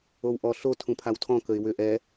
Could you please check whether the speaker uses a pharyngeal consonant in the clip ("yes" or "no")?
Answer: no